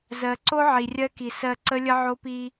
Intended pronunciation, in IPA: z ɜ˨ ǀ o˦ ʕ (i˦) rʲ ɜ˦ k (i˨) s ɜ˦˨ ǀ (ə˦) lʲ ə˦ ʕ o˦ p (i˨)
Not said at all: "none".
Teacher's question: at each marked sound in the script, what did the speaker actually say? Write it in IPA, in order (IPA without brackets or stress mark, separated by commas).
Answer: i˨, i˨, ə˦, i˦